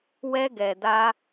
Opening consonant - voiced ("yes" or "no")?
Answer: yes